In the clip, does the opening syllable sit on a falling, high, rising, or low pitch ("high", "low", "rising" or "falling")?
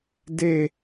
falling